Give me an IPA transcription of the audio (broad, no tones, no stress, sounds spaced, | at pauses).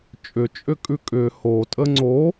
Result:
t͡ʃʼ ʏ t͡ʃʼ ʏ kʼ ʉ kʼ ʏ h o tʼ ə ŋ͡ǀ o